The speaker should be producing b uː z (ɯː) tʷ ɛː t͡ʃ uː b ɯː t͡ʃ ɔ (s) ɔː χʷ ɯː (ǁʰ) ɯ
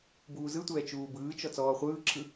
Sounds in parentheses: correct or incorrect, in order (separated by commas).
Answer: incorrect, incorrect, correct